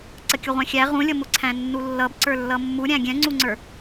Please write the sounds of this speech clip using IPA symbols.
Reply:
ǀ ə kʲ ʊ ʁʷ æ̃ xʲ æ ʁ ũ lʲ ʌ m ʊ ǀʰ æ̃ nː u lː ʌ b ǀ ə˞ lː ʌ mː u ɾʲ æ̃ ɡʲ ɛ̃ ŋ͡ǀ u ŋ͡ǀ ə˞

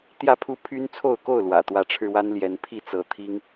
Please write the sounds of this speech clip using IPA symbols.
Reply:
t̪ j ä˥˨ pʰ u˦ pʰ y˦ n t͡sʰ o˥˨ ʊ̯ k o˥˨ ʊ̯ l w ä̰˨˩ t̪ w ä˨˦ ʈ͡ʂʰ ɻ̩˧ w a˦ n l j ɛ˨˦ n pʰ i˥˨ t͡s ɤ˨˦ t̪ʰ i˦ ŋ

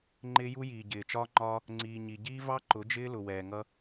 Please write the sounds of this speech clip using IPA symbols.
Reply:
ŋ͡ǃ ɪː˦ j u˦ j iː˨ ɟ ɪː˨ t͡ʃ ɒː˦ ŋ͡ǃ ɒː˦ | ŋ͡ǀ iː˨ ɲ i˨ ɟ iː˦ v ɑ˦ ǃ ʊ˨˦ d͡ʒ ɪː˦ l ʊ˨ w ɛː˨ ŋ ʌ˦

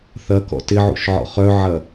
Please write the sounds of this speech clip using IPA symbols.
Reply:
θ ɐ k ɔ̰ t ɪ ʕ ṵ ʃ ʕ ɔ̰ χ œ ʕ ɐ

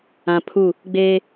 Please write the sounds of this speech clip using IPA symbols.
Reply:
ã˨ pʰ u˦˨ | ɡ͡b eː˦

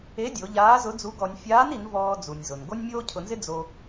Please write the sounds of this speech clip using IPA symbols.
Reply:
e˧˥ dʲ o˩˧ ʎ aː˧˥ z ʊ˧˥ d͡z u˧˥ ɡ ɔ˧ nʲ fʲ aː˧˥ n i˩˧ n v ɔː˧ d͡z u˩ nʲ z ʊ˩ n ɡ o˥ nʲ mʲ oː˥ cʰ ʊ˧ n z ɪ˥ d͡z o˧

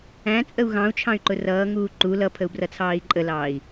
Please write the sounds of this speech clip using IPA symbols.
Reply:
æ̃ t͡sʼ ə u̯ ɣ ɑ̃ u̯ t͡ʃʰ ɑ̃ y̯ ǃ ʊ r ʌː ŋ uː ǃ u l ʌ pʰ ə u̯ b r ʌ t͡sʰ ɑː i̯ ǃʼ ə l ɑː i̯

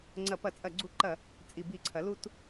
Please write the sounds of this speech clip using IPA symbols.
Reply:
ŋ͡ǀ ɐ˧˩˧ p ɐ˧˩˧ t͡sʼ ɐ˧˩˧ ɡ͡ǀ u˧˩˧ ǃ ɐ˧˩˧ | t͡sʼ i˧˩˧ b i˧˩˧ ǀʰ ɐ˩˥ l u˦ t

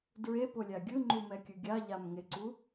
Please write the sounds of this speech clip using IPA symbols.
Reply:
d ɹ e p o lʲ a ɡʲ ɯ ŋ͡ǃ u m ɛ kʲ ɯ ɡʲ a ʎ a m ŋ e ǀ u

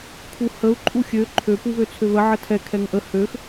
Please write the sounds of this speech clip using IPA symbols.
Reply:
kʰ u h ə u̯ ǃʼ u xʲ ø ǃʰ ø p u β ø t͡sʰ ø β ə ʕ ə tʰ ɛ kʰ ɛ ŋ ʔ ə h ø x

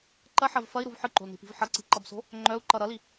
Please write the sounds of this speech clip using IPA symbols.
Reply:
ǃ ɐ ħ ɐ v f ɐ i̯ ɾ u v ħ ɯ ǃ o̤ l n i̤ p i̤ v ħ ʌ ǀ i̤ ǃ ʌ b s o̤ | ŋ͡ǃ œ u̯ ǃ ʌ ɾ ʌ l i

